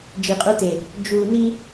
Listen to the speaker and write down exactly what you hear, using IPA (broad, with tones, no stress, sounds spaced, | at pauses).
d͡ʒ i˨ qʼ u˦ t e˨ | d͡ʒ u˨ n i˦